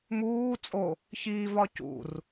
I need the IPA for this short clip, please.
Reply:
muː t͡sʼo | çiːvɒ cṵr

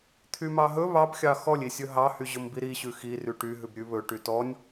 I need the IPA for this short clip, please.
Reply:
t̪ʰymɑɦɵ βɑbxʲɑ xɔlʲisʲɵ ɦɑhy ʑɵmbiɾi ɕʉxi ryʈy ɦʉbɾʲʉβɵ ʈytɔnʲ

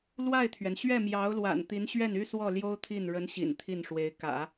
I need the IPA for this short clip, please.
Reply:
lwa˥˩ɪ̯t̪ʰɥɛ˩n ɕɥɛ˥˩mjɑ˧˥ʊ̯lwa̰˨˩n t̪i˧˥nɕɥɛ˥˩ny˥swɔ˥˩ ljo˥ʊ̯t̪ʰi˥˩n ɻə˧˥nɕḭ˨˩n t̪ʰi˥˩nʂwe˧˥ɪ̯ kä̰˨˩˦

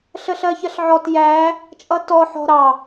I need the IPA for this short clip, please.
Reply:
ɬəɬɜçɜɬʕɔt jæ | t͡ʃʼʌtɔ ħɔ̤ɾɑ

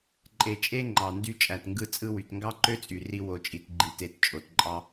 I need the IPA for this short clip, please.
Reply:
ǃʼe˩t͡ʃʼe˥ ŋ͡ǃɑ˩ndy˧ t͡ʃʼæ˩tŋɡɯ˧ t͡sʼɯ˧wy˩t ŋɡɑ˥ǃø˥t͡sʼy˩ ri˧ wo˩t͡ʃʼi˩t ɡ͡ǃi˩te˩t t͡ʃʼo˩tǃʼɑ˧

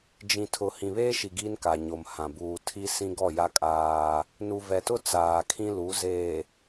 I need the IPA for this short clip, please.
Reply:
d͡ʒĩ˨tʰʊ˨ hĩ˨βeː˦ʃi˨ ɡiː˦nka˨ɲo˨m hã˨ buː˨tʰi˦ sĩ˦ɡɔ˦˨ja˦kʼaː˦ | nu˨vɛ˨tʊ˦ t͡saː˨kʰĩ˦lu˨˦ zeː˨

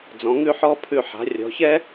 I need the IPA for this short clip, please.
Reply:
d͡zɔ̃˩˧ŋʉ˥˧ħɔ˥˧pʰʉ˧˩ ħa̤˩˧rʲɔ̤˩˧çɛ˥

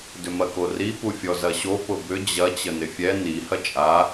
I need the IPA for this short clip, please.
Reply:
dʏmɐkori pufʲɔzɐɕo pʊbʏ d͡ʑɐ t͡ɕənɪfʲɛ ni hɐt͡ʃʼa

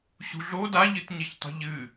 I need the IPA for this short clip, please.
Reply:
ɕṳ ɮo daʎɨtɲeçtˤṳʎ ɨ

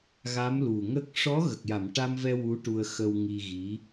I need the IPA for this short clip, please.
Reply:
ɣa˧˥mlu˨˩ŋə˦˥k̚ ʂɔ˧˥ ɣə˨˩k̚ja˨˩˨mʈa˧mvɛ˧ wu˧˥ʈu˧ə̯xə˧w ŋi˧ɣi˧˥

